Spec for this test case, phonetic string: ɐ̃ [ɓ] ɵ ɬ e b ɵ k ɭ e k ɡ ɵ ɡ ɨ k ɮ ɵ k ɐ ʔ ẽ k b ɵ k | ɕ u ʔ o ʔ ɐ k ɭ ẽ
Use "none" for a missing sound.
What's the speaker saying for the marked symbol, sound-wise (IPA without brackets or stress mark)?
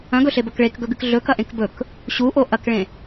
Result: ɡ